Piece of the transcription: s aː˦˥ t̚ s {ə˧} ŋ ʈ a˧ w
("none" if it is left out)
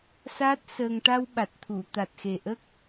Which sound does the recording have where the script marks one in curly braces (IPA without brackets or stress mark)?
əː˧